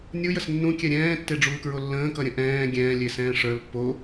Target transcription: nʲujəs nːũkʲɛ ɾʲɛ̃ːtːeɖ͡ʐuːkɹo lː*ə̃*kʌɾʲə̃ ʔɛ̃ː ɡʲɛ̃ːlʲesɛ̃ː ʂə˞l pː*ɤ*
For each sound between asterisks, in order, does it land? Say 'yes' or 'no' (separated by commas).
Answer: no, no